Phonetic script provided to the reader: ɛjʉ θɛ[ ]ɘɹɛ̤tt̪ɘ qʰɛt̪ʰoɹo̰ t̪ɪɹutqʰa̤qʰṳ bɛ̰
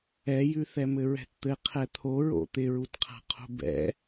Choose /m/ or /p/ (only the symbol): m